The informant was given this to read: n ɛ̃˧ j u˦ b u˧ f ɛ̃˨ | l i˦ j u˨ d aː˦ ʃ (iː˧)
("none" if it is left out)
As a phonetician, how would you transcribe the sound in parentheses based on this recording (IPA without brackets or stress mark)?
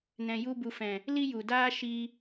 i˧